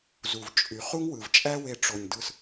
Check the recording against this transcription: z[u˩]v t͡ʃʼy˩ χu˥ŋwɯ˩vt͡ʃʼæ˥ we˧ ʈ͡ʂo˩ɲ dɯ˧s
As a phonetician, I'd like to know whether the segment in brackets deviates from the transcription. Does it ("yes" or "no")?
no